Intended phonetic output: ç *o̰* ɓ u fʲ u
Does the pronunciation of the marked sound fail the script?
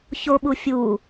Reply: yes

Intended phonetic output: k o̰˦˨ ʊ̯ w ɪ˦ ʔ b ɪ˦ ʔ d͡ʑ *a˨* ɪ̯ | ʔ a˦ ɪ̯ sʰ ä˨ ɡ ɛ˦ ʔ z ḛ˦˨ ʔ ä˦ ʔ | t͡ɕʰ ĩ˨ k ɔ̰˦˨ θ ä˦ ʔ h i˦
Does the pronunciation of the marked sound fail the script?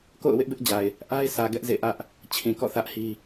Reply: no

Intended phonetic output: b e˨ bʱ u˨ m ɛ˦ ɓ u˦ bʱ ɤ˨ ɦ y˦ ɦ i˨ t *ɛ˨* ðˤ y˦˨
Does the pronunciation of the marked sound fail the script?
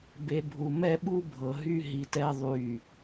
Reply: yes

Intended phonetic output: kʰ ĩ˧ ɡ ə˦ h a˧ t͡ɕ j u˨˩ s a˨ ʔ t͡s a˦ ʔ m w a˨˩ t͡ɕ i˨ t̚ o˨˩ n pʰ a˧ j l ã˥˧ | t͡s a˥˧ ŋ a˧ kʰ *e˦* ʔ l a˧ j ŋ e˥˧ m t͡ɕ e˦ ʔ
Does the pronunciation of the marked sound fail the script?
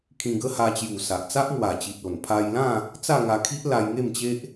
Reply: yes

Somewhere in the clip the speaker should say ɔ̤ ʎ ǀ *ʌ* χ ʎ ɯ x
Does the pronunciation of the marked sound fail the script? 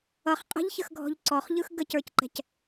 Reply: yes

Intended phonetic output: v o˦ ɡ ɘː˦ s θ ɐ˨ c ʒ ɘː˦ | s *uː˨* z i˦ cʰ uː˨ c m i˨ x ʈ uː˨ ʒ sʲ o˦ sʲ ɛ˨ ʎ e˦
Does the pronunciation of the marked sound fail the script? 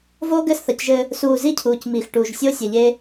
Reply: no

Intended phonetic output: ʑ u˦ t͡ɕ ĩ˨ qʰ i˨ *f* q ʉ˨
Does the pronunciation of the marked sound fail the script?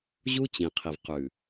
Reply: yes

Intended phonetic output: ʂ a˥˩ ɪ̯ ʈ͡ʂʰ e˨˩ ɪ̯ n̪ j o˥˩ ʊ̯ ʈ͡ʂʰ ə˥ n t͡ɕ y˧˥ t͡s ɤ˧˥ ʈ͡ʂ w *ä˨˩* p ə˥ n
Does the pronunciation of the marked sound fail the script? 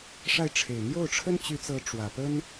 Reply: no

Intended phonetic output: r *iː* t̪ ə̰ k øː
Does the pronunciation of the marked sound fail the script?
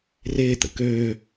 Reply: yes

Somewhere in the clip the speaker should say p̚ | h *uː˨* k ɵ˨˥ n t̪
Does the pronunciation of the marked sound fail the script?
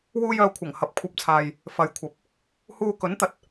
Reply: yes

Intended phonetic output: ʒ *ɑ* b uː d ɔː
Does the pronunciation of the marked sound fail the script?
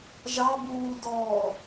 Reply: no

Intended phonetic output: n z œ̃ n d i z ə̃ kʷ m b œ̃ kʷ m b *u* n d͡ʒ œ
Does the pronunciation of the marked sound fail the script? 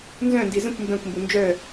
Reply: no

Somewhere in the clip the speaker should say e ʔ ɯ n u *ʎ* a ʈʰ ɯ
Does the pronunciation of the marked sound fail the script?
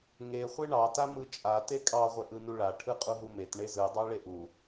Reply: yes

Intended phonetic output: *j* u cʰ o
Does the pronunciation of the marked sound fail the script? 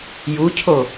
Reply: no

